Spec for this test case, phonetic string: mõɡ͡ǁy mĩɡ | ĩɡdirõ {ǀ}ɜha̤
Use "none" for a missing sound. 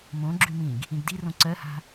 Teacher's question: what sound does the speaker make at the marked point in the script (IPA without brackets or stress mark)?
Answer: ǀ